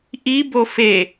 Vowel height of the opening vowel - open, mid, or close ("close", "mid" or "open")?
close